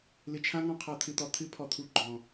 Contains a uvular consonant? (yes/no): yes